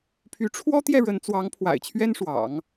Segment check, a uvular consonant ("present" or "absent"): absent